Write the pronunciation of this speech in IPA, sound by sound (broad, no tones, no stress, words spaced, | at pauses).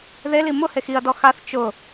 ðeli mʊ hexiɐ̯dɔ xaθ t͡ʃʊ